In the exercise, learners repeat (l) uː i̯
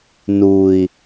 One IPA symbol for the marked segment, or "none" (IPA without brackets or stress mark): n